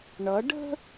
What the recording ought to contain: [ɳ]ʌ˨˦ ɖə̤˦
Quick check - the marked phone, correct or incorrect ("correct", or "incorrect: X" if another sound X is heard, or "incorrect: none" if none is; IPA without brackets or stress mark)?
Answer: correct